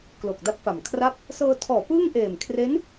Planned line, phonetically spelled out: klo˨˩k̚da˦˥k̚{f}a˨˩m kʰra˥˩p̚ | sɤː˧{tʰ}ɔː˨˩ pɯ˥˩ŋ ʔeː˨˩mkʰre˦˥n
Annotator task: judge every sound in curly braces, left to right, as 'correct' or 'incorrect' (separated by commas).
correct, correct